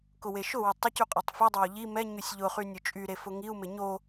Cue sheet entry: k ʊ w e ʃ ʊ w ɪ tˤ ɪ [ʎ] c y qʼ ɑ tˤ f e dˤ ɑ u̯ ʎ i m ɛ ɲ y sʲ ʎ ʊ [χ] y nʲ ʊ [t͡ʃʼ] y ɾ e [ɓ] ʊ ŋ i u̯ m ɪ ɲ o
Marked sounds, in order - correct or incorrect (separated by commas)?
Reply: incorrect, correct, correct, incorrect